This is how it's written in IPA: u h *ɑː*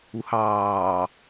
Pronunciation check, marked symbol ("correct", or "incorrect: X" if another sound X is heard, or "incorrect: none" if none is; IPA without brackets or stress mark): correct